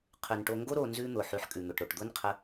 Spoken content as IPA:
qʰ ʉ˨ n ʈ o˧ ŋ ɡ o˦ ɾ o˧ n z ʉ˦ n̪ ʊ˨ ħ ʉ˧ ħ kʼ ʉ˨ n̪ ʊ˨ ʈ ɾ o˨ ʈ d̪ ʊ˦ n qʰ ə˧

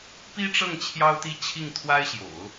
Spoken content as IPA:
p i˥ ʈ͡ʂ ɤ˥˩ ŋ t͡ɕʰ j ɑ˥ ʊ̯ t̪ i˥˧ t͡ɕʰ i˥˩ ŋ t̪ʰ w a˥ ɪ̯ ɕ j o̰˨˩˦ ʊ̯

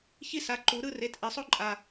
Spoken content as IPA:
ç i˥ s a˩˥ ǃ u˨˩˦ ɾ ɯ˥˧ r e˩˥ t ʔ i˨˩˦ sˤ o˥ ǃʼ a˨

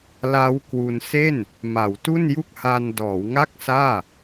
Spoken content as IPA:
l a˦˥ w k w u˧ n s e˥˩ n | m a˩˦ w t u˥˩ n j u˥˩ k̚ h a˧ n d ɔː˩˦ w ŋ a˥˩ k̚ s aː˥˩

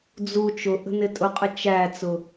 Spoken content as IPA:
d͡z u t͡ʃ ʊ ʔ ə̤ n ɪ tʼ ʊ qʼ ə t͡ʃ æ t͡s ʊ

